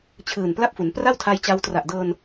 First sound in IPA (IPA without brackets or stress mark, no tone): t͡ɕʰ